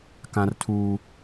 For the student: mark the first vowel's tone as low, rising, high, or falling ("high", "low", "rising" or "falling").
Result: high